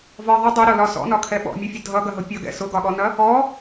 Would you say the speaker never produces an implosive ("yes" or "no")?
no